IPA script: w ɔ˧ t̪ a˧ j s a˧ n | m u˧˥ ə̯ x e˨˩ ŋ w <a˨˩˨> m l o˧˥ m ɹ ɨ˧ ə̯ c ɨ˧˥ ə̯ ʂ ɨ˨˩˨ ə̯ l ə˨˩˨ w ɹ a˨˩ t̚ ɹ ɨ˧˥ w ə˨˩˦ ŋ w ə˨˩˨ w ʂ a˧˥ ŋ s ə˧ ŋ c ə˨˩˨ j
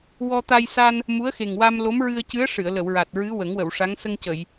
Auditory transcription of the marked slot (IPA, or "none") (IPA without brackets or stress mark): a˧